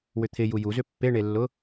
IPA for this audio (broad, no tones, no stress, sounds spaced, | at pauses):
w ʏ t̪ʰ ɪ j u j u z ʏ pː e ɳ e lː ʊ